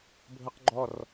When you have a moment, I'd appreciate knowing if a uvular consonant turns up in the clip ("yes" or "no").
yes